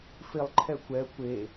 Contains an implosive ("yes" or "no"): no